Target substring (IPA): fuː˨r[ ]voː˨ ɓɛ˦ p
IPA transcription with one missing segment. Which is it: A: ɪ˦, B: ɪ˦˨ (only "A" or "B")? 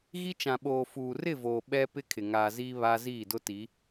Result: B